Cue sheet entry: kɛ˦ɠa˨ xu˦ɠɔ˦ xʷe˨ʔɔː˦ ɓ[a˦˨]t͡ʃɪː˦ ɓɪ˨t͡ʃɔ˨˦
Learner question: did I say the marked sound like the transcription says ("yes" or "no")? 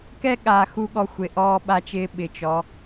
no